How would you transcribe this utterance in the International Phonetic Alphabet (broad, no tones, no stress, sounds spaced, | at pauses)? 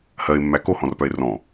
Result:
h ɜ e̯ mː æ k o h ɔ̃ r p œ e̯ r ɔ̃